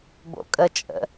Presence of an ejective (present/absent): present